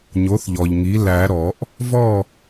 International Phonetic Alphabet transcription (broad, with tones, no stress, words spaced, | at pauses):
ɲo˩˥θʎɔ˩ʎŋi˩˥ læ˨˩˦ ɾɔ˨˩˦ʔ | vɔ˥˨